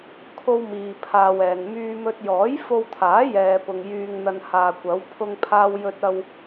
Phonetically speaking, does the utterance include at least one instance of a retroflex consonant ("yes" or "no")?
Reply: no